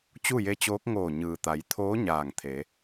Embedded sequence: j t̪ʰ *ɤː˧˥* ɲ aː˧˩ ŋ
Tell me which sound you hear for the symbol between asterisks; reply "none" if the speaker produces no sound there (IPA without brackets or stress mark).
oː˧˥